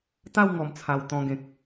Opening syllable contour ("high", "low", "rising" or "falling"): falling